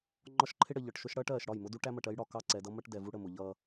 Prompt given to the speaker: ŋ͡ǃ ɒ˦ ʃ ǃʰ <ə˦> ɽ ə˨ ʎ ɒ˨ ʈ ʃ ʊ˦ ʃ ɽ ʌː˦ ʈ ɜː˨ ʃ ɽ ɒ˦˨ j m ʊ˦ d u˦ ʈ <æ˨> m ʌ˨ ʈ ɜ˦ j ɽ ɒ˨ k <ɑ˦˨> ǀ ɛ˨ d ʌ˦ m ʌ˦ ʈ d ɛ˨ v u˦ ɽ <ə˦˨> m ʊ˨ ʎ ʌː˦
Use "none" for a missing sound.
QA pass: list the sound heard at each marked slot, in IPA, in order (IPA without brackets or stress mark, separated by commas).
ɪ˦, æ˦, ɑ˦˨, ə˦˨